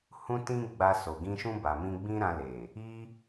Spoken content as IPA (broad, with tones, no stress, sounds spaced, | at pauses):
h ũ˦ t ĩ˦ ɡ͡b a˧ s o˨ ɡ ĩ˧ ʃ ũ˧ b a˨ m ĩ˧ ɡ͡b ĩ˦ ɾ ã˧ l e˨ | i˦